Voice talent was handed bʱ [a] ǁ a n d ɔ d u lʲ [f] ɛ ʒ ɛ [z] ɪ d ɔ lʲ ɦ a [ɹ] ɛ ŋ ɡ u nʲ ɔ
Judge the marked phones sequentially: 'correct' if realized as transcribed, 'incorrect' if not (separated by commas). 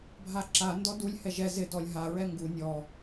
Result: correct, incorrect, correct, correct